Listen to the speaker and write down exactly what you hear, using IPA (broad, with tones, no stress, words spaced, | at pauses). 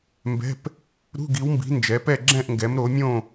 mbɛ̤˧˥˧p | ɾṳ˧˥˧ɡi˨˦wmbi̤˨˦ nd͡ʒɛ˨˦pɛ˥˧ɡ͡ǁɛ̃˥˧ʔŋɡɛ˨˦m ɾo˨˦mʲõ˥˧